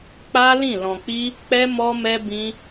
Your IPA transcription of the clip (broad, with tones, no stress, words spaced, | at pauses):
k͡pa˦ lĩ˦˨lɔ̃˧k͡pi˦ | k͡pɛ˦mɔ˦mɛ˦ bĩ˦